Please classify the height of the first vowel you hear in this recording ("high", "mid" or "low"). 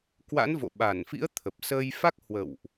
low